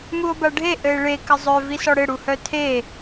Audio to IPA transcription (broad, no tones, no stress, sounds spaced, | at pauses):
m u o̯ b a ɖʱ e ʔ ɘ e̯ ɭ e k ɘ zˤ œ v i s ɔ ɽ ɘ ɽ u h œ tʰ e